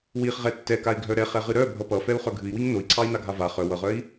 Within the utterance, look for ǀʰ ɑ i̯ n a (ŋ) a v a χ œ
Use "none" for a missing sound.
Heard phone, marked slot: ɡʱ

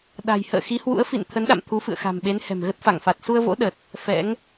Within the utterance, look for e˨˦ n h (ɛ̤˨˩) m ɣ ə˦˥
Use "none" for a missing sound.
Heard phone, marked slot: ɛ̤˨˩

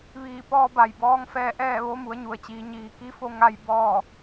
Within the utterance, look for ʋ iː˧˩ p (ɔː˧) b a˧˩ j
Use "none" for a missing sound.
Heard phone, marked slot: ɔː˧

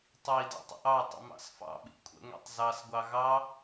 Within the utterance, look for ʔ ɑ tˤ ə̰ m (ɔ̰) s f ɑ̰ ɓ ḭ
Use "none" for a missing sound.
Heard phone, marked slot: ɑ̰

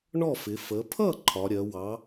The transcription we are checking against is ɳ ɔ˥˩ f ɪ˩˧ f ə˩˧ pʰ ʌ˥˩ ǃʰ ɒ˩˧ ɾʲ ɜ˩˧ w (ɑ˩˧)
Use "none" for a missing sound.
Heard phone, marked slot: ɑ˩˧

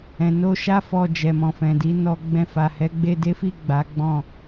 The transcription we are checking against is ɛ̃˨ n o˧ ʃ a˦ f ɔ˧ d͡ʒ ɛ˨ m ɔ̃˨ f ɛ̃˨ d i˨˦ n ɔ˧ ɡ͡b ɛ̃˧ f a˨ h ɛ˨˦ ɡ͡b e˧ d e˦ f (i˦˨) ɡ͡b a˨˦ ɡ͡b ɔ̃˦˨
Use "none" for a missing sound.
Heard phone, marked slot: i˦˨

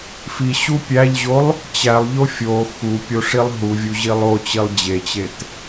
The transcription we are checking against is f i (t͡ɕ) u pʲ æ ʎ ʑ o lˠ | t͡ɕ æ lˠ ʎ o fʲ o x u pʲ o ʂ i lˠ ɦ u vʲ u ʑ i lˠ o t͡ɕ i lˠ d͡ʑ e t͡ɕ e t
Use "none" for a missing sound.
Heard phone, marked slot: ɕ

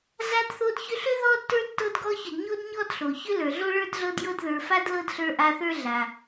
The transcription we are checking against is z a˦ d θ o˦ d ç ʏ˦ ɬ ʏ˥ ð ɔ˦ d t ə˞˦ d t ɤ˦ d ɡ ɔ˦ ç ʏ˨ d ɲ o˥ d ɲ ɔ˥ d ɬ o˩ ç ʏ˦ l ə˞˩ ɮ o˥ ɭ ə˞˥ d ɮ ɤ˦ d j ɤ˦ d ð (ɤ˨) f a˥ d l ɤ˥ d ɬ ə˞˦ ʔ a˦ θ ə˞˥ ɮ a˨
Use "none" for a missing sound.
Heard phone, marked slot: ə˞˨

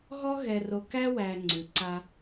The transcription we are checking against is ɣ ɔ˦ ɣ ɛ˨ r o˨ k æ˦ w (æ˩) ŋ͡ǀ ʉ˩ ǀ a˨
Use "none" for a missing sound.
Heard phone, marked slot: æ˨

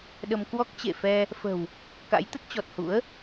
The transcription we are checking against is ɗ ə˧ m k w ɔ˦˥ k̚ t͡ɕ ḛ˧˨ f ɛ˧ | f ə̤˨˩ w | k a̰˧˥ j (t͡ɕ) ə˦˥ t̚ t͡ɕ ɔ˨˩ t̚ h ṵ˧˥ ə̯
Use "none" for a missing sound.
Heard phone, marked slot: t̪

